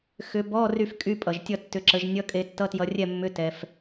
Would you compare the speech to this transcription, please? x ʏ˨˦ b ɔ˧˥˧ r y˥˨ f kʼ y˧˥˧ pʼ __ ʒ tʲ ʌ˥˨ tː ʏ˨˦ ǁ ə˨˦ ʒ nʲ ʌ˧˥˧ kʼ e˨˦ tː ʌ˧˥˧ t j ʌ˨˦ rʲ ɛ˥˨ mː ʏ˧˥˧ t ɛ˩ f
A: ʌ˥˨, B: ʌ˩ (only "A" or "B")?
B